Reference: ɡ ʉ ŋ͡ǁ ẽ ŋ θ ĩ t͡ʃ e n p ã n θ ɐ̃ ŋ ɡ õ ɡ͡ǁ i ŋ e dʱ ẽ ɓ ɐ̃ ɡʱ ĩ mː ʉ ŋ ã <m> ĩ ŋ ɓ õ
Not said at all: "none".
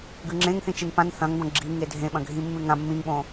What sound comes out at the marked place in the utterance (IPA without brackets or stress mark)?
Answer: mː